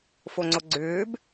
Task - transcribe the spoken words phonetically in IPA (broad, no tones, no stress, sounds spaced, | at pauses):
f o ŋ͡ǀ o ɡ͡ǀ ʏː b